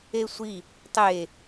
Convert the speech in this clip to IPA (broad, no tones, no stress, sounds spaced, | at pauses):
e sʷ i | tˤ e